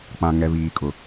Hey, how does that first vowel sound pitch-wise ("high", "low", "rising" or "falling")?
low